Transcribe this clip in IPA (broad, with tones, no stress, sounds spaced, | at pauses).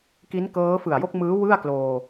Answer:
k i˦˥ n k ɤː˦˥ f ɯ˨˩ a̯ j o˥˩ k̚ m ɯː˦˥ w ɯ˥˩ a̯ k l oː˧